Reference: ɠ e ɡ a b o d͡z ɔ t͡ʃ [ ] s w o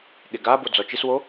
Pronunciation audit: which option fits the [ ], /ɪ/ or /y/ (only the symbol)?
ɪ